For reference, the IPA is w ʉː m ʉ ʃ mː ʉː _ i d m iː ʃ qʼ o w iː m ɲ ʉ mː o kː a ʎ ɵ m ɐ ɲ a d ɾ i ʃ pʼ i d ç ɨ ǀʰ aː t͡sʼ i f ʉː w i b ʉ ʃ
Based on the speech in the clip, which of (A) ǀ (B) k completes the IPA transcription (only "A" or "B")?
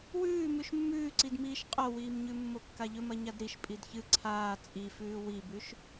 A